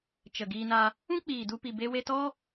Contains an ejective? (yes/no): no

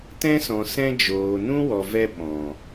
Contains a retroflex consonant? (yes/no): no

